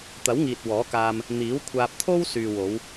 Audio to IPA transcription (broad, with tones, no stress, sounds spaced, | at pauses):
t̪ ɐ˨˥ w ŋ iː˨ t̚ w ɔː˨˥ k aː˧ m | n̪ iː˨˥ w kʷʰ aː˧ p̚ t̪ʰ o˥ w s yː˨ w o˨˧ w